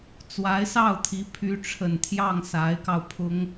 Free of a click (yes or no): yes